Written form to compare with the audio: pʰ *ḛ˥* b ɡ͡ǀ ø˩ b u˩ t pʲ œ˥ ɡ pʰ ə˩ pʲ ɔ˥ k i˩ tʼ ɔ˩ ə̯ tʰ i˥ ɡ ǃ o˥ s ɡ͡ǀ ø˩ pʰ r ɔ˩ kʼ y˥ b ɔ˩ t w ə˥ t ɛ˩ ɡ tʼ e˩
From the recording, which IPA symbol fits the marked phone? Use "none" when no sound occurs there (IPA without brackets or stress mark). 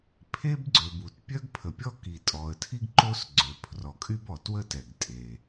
e˥